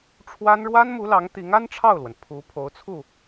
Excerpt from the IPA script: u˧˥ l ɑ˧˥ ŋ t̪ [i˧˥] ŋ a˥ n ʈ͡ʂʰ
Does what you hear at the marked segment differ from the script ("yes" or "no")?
no